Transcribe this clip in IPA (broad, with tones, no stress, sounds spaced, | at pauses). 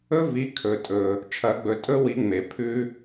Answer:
ɵ˦ v i˨˦ kʰ ɵ˨ tʼ ɵ˨ | t͡ʃʰ ɐ˨˩˦ ɡ͡b ɵ˨ tʼ ɵ˦ w i˨˦ ŋ͡m e˨ pʰ ʉ˦